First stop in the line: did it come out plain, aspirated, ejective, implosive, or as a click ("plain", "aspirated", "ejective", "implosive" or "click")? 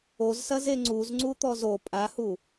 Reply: click